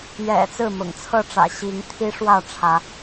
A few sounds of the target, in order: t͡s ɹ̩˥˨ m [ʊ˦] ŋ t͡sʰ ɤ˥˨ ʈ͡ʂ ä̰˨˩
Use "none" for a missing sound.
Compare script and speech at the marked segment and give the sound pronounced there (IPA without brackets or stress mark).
ʊ̰˨˩